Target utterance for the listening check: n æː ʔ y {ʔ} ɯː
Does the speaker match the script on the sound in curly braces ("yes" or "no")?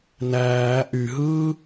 no